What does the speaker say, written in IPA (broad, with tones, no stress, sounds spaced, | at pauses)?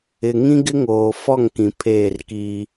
ɪ˨ ŋ ĩ˦ ɡ ɪ˦ ŋ oː˨ f ɔ˦˨ ŋ k ĩ˨ pʰ eː˦˨ r k iː˦